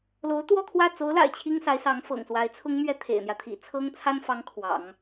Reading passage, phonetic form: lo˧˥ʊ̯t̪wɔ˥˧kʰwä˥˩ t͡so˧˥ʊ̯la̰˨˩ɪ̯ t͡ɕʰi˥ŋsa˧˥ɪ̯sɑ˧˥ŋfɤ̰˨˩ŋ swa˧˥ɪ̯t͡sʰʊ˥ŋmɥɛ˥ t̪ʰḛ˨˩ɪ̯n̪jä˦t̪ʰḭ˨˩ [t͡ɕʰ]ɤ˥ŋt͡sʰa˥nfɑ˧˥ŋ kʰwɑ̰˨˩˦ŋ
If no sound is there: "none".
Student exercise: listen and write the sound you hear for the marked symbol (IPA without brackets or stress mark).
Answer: t͡sʰ